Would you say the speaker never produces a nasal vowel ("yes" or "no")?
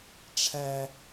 yes